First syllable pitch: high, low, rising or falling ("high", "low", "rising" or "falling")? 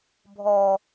low